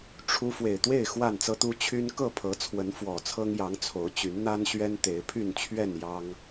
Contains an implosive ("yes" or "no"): no